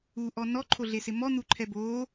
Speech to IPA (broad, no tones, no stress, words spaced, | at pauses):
uʔɔ nɔǃʰoɮesɪ mɔn̪uǃʰɛ boː